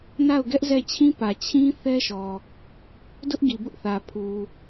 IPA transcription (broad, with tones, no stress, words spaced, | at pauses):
na˦˨ʊ̯ɡɛ˦ʔzɛ˦˨t͡ɕʰĩ˦ pä˨t͡ɕʰĩ˦ θɛ˦ʃɔ˨ | dʊ˦ʔɡi˨bʊ˦ʔθä˨ pʰu˨